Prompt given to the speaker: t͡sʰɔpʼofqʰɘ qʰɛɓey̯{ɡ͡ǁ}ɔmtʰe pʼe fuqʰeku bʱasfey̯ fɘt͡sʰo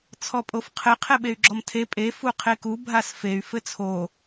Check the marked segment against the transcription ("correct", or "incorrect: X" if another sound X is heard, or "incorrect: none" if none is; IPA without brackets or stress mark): correct